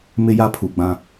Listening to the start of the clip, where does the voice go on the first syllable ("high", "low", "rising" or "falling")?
high